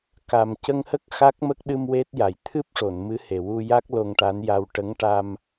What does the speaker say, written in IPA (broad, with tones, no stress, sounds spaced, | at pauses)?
k a˨˩ m c ə˧ ŋ h ə˦˥ k̚ x a˦˥ k̚ m ə˦˥ k̚ ɗ ɨ˧ m w e˦˥ t̚ j a˨˩ j t̪ʰ ɨ˦˥ p̚ ʂ o˨˩˨ n m ɨ˧˥ h e˨˩ w u˧ j a˦˥ k̚ l o˧ ŋ ʈ a˧˥ n j a˧ w ʈ ə˧˥ ŋ ʈ a˧ m